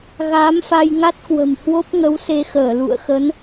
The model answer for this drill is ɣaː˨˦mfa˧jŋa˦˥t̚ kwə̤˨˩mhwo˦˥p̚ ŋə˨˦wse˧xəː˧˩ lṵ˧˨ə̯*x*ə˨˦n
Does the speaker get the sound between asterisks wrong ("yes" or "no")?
no